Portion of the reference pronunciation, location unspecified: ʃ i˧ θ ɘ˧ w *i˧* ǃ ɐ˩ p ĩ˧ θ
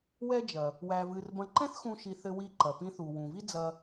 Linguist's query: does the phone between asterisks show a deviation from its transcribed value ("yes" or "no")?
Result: no